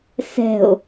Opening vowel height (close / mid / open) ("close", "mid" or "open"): mid